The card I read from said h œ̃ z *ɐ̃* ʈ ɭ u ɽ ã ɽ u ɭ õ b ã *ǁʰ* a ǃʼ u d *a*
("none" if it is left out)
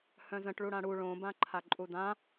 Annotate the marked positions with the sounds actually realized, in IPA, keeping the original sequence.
ə̃, ǃʰ, ã

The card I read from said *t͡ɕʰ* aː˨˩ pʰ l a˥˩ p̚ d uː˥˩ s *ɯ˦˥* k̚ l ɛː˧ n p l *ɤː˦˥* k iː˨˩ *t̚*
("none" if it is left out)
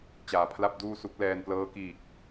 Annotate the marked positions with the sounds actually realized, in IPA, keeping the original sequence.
t͡ɕ, u˦˥, ɤː˦˥, k̚

